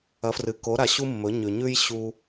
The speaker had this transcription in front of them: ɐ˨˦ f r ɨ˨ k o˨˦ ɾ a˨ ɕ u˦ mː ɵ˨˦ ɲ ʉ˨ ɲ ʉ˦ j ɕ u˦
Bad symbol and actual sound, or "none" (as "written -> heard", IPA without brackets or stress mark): none